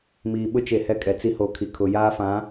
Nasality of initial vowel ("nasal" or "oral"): oral